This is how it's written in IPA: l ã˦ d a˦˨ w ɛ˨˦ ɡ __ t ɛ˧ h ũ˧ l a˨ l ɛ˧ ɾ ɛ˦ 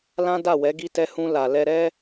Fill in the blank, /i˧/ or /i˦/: i˧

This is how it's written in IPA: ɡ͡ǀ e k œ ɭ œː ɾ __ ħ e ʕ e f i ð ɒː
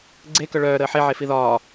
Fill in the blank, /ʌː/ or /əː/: əː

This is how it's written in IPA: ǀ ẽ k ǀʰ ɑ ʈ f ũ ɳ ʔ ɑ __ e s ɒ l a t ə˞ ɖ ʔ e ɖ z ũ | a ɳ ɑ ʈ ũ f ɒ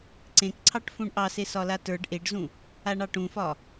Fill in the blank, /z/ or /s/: s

